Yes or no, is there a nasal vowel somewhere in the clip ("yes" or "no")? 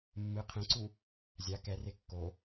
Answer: yes